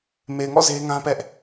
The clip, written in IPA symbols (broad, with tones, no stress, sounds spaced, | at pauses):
m e˨ ɪ̯ ŋ ɔ̰˦˨ z e˦ ŋ ã˦ p ɛ˦ ʔ